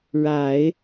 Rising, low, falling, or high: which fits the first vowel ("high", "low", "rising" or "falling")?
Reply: low